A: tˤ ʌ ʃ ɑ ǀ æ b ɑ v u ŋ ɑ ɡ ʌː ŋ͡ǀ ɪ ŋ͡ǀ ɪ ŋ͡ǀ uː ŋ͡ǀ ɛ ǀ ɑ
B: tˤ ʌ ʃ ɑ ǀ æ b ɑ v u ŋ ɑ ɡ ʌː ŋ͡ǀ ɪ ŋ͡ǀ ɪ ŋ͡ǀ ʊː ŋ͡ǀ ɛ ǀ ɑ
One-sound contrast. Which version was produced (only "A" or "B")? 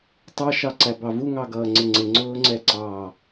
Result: B